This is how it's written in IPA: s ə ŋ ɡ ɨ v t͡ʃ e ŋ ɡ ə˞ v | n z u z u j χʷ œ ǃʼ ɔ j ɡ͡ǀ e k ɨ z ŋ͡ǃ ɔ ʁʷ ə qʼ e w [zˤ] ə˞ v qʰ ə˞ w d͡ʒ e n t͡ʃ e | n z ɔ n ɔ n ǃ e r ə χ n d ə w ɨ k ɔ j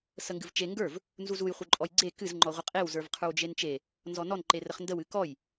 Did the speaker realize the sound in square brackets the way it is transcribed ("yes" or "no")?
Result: no